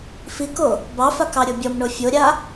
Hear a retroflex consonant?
yes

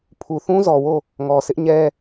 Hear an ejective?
no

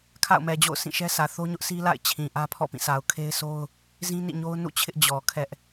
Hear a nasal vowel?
yes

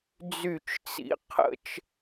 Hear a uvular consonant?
yes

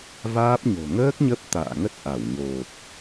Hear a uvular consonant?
no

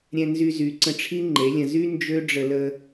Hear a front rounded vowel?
yes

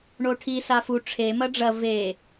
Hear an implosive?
no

